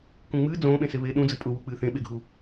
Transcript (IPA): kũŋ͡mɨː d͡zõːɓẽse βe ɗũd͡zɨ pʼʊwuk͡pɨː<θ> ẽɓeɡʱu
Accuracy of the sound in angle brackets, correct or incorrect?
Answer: correct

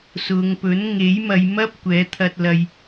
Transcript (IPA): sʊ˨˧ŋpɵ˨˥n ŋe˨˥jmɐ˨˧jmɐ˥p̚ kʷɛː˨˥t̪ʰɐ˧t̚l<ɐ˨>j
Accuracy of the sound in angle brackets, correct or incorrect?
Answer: incorrect: ɐ˧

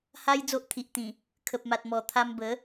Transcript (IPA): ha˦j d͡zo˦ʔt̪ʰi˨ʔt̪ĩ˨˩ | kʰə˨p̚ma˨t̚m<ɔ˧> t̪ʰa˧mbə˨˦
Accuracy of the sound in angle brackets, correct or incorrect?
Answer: incorrect: ɔ˨˩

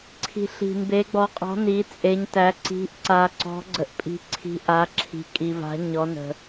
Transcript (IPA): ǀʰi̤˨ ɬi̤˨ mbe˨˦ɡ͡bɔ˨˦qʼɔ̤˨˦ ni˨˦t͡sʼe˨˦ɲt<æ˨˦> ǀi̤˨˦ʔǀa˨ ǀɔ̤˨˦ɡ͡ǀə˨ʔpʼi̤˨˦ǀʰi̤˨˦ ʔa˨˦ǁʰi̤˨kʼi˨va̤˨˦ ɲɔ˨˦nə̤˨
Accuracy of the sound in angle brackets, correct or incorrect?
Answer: correct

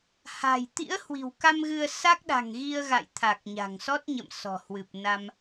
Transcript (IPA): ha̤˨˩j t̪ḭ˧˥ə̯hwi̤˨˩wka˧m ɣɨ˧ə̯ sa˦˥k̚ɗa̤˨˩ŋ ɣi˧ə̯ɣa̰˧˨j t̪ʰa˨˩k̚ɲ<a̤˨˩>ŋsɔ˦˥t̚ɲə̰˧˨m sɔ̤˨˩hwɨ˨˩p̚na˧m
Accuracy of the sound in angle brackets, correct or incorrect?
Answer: correct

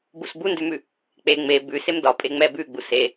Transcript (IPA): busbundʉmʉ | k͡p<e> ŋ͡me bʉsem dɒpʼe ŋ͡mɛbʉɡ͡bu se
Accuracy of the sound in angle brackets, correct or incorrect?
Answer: correct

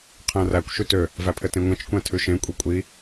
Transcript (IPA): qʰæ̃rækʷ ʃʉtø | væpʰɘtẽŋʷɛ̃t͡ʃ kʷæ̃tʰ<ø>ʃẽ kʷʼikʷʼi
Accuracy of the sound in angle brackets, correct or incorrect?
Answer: incorrect: ʉ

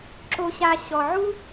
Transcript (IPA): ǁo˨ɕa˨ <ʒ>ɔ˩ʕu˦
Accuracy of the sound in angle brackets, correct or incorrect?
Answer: incorrect: ɕ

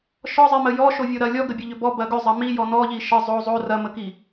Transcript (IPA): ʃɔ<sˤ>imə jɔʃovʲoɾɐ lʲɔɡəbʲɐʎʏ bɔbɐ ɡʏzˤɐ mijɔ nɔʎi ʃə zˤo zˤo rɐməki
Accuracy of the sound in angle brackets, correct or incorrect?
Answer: incorrect: zˤ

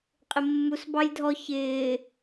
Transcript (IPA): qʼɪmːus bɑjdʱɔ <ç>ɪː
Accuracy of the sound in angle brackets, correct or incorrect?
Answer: correct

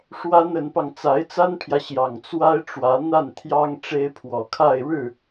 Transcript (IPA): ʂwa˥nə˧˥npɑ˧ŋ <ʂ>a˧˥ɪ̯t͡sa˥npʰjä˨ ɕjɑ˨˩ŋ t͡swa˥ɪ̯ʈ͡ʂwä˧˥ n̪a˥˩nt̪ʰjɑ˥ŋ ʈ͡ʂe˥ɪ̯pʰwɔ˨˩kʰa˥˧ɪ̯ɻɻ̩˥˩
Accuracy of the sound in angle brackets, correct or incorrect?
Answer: incorrect: t͡s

